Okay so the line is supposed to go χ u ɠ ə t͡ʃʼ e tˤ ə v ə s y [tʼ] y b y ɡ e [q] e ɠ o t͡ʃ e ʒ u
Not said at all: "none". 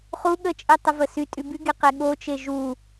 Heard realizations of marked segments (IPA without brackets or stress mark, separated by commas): tʼ, q